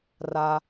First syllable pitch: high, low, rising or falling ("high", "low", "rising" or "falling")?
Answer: low